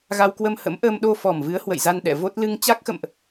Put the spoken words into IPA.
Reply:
ɣ a˧ w k w ə˧ m h ə̰˧˥ m ʔ əː˧ m ɗ o˧ f ɔ˨˩ m v ɨ˨˦ ə̯ h w ə̰˧˨ j z a˧ n ɗ ɛ̰˧˨ v o˦˥ t̚ l ɨ˧ ŋ t͡ɕ a˦˥ k̚ x ə̰˧˨ m ʔ

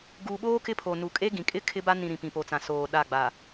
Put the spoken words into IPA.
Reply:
ɡ u˨ ɓ oː˦ k ɪ˦ pʰ o˨ n u˨ kʼ e˦ ɡ ĩ˨ kʼ ɪ˦ kʰ ɪ˦ b a˦ n ĩ˨ ɾ ĩ˨ p ĩ˨ p o˨ t͡s ã˨ s oː˨ ɗ a˦˨ ɡ͡b a˨

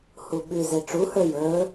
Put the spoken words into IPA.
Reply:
h u ɓ ʉ z e ʈ͡ʂ u h ə˞ j ə˞

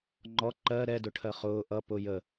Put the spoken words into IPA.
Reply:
ŋ͡ǃ ɔ ǃ ɜ ɾ ɛ d ʊ ʈʰ ɜ χ ʊː ʔ ʌ p ʊ j ə

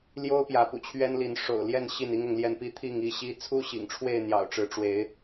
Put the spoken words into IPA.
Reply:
l j o˦ ʊ̯ p j ä˨˦ p ṵ˨˩ t͡ɕʰ ɥ ɛ˦ n l i˨˦ n ʂ o̰˨˩ ʊ̯ l j ɛ˥˨ n ɕ i˥˨ n i˦ ŋ ʊ˨˦ ŋ l j ɛ˥˨ n p i˦ t̪ʰ i˥˨ ŋ i˦ ɕ i˦ t͡sʰ u˦ ɕ ḭ˨˩ ŋ ʈ͡ʂʰ w e˥˨ ɪ̯ n̪ j ɑ̰˨˩ ʊ̯ ʈ͡ʂ ɻ̩˨˦ ʈ͡ʂ w e˨˦ ɪ̯

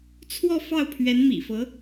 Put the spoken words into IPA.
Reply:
t͡sʰ w ɔ˥˧ f ɑ˥˩ ʊ̯ pʰ ɥ ɛ˧˥ n m ḭ˨˩ f ɤ˧˥

